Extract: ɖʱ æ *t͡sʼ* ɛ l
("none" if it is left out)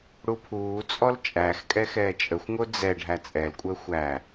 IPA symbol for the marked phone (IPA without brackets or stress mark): t͡sʼ